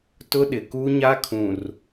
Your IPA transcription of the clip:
tʊ˦ɗɪ˨ku˦ ɲa˦kʰũ˨r

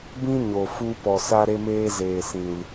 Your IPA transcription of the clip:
bĩ˦ɲo˨ fu˧pɔ˨ sa˦ɾe˦meː˦ zeː˨sĩ˨l

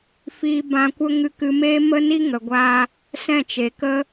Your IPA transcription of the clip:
fiː˧ bã˧kʷə˦ ŋɨ˧kɨ˧meː˦ mə˦ni˦ ŋə˨ɡʷa˧ | sɛ̃˦˨t͡ʃe˨kə˦

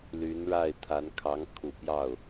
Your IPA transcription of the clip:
ly˧˥nɻa˥˩ɪ̯t̪ʰa˧˥n kʰɑ˧˥ŋkʰu˨˩pjɑ˥˩ʊ̯

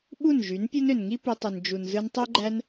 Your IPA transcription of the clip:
ɓu˦˨nʒy˨˦npʲu˦n ø˨nŋi˦py˧tˤɯ˨n d͡ʒu˨nzɯ˧n tˤy˦ɡ͡ǃæ˦n

